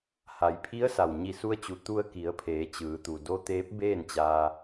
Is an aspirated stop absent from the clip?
no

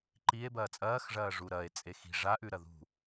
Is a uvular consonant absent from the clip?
yes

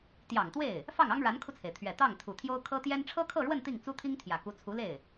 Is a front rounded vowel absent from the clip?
yes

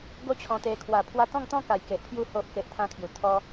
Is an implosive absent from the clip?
yes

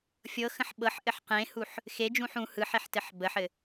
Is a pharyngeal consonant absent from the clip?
no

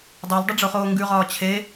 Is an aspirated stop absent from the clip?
no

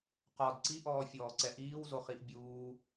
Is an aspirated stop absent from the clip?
yes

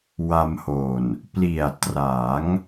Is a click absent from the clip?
yes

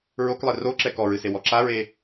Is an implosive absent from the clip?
yes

